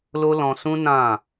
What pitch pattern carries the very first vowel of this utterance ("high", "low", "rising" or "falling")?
high